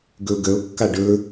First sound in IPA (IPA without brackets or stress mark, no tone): ɡ